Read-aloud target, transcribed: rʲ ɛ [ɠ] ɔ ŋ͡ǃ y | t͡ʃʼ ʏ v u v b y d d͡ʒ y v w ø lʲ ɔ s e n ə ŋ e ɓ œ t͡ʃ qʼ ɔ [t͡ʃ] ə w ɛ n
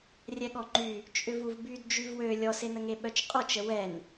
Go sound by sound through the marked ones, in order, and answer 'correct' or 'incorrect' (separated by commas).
correct, correct